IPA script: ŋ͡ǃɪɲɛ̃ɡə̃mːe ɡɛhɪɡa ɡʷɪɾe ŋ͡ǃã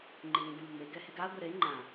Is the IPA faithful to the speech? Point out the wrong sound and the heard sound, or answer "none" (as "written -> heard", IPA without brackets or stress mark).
none